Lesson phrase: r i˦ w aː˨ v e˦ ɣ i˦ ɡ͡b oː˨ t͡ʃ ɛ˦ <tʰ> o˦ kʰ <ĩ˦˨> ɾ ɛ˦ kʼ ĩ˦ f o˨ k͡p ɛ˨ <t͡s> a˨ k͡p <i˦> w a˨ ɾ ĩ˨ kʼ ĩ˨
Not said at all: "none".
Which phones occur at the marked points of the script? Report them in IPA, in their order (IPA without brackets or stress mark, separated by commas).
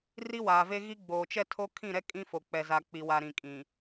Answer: tʰ, ĩ˦˨, z, i˨